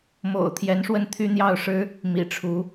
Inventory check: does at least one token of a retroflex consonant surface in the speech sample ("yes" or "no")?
yes